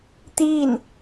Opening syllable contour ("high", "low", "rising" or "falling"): falling